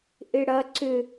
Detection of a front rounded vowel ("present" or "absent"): present